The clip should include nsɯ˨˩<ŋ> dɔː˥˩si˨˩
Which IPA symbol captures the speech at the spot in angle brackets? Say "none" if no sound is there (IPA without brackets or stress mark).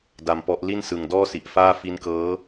ŋ